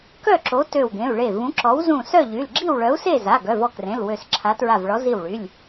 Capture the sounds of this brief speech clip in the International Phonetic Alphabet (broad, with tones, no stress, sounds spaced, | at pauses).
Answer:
k œ˥˨ ǁ o˨˥ t ø˧˩ w ɡ ẽ˩˧˩ u̯ ɭ e˧˩ v ũ˨˥ ǁ ɔ˨˥ w z ũ˧˩ s œ˥˨ ʎ y˩˧˩ l ɡ͡ǁ i˥˨ w ɭ œ˨˥ u̯ s e˥˨ z a˩˧˩ ɡ œ˩˧˩ v ɔ˧˩ k r ẽ˩˧˩ l w ø˧˩ s ǁʰ a˨˥ t ɹ a˧˩ v ɭ ɔ˨˥ z i˧˩ w ɭ y˩˧˩ lʲ